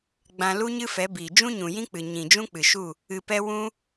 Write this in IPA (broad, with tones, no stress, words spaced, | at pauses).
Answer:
ɡ͡bã˧lu˦ ɲɨ˦fɛ˨˦biː˨ d͡ʒũ˦ɲũ˨jĩ˦k͡pɨ˨ ɲĩ˨d͡ʒũ˦k͡pɨ˨ʃu˦˨ | ɨ˧pɛ˦ wũ˦